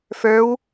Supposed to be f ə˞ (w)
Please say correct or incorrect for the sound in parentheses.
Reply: correct